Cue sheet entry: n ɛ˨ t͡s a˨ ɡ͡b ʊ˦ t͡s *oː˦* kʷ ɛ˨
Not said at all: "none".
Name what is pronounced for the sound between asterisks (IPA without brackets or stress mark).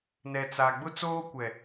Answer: oː˦